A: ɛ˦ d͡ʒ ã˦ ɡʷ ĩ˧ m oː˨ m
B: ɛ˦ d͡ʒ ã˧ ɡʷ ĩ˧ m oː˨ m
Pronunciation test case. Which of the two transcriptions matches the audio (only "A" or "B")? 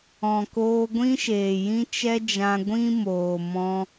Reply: B